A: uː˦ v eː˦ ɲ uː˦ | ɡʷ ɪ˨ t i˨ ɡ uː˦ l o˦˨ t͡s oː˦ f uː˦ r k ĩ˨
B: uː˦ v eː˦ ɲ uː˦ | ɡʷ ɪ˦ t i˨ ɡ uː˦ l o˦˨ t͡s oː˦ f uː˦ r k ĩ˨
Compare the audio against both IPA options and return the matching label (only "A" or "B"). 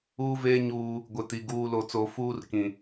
A